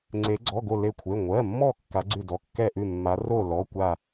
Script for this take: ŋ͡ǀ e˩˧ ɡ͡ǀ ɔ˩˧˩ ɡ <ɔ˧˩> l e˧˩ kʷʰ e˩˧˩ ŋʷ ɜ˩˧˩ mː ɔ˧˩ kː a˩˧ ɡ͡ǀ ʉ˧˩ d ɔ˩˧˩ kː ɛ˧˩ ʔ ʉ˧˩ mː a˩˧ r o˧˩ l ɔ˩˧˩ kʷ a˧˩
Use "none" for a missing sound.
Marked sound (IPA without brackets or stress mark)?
o˧˩